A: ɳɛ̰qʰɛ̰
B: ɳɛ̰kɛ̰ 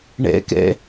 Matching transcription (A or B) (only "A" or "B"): B